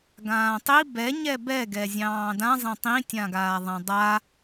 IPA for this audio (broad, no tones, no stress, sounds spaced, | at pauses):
ɡ ãː tˤ i b ɛ ɲ ɛ b ɛ ɡ ɛ zʲ ɑ̃ː d ã zˤ ɛ̃ tˤ ĩ tʲ ã ɡ aː ðˤ ã dˤ a